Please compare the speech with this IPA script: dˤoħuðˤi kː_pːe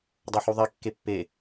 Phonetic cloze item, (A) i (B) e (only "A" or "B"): B